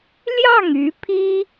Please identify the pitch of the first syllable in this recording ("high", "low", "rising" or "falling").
falling